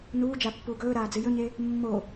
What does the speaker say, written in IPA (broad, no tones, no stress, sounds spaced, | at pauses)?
n uː d͡ʒ a pː uː ɡ ɵː ɾ aː d͡z ɨ j ɵ ɲ e | mː o